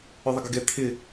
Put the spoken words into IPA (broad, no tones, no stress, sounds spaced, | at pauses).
ʏ ðˤ ɪ ɡ ɪ ɡ ɛ t̪ʰ ɪ